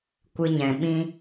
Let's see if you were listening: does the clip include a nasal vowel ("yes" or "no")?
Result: yes